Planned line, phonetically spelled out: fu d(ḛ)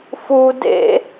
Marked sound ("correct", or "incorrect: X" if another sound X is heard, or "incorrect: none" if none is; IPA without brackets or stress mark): correct